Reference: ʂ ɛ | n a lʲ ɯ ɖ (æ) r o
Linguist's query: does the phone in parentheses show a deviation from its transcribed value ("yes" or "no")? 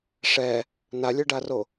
yes